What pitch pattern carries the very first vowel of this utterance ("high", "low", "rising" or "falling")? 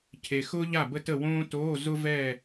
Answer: low